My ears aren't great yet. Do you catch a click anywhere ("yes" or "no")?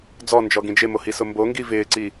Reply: yes